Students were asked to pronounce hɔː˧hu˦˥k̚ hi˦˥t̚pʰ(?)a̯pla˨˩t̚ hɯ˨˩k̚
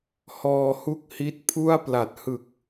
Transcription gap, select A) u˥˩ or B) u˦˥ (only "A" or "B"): A